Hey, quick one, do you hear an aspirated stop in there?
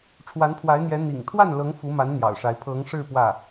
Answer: yes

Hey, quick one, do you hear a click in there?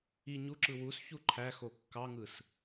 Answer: yes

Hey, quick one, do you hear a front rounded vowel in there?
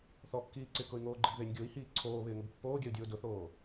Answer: yes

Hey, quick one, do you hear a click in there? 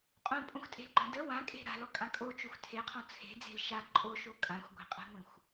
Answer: yes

